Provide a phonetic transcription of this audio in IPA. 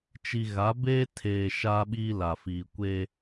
t͡ʃi˨ɣa˨˦beː˦tʰeː˨ ʃaː˦ɓiː˦la˨fiː˨ kʷe˦

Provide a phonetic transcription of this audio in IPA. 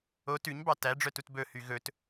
o tʉɲbɑ tæɖ͡ʐœtut bɵhy ɣɵt

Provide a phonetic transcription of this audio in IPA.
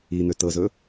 in̪ø tɤzɵ

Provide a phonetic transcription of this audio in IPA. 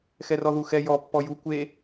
xɛrɔðuxɛ jɔ pːɔju kʷe

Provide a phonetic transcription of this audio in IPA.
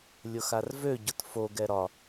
lʲʊxarvø ɟʊtfoɡ ɛɾɒ

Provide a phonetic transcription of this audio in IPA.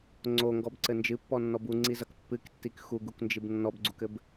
ŋ͡ǀoŋɡɔbǀɘ nd͡ʒɨpːɔnːɔb uŋ͡ǀizɐk pːɨktːik xuɡuknd͡ʒɨb nːɔbɡ͡ǀukɘb

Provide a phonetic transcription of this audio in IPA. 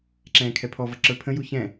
ǁɛ̃ːkʰɛpʰɔvʌ ǁə˞pʰə̃ju çɛ̃

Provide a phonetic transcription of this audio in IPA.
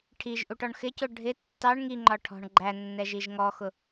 ʈʰiʒ ʔuʈɔɳxɪcʊ ɖʱɪ tːɑɳ ŋiŋ͡ǃɒ ʈʰɔ̤ɳ ɡ͡ǃæ nːɛʒiʒŋɔxʊ

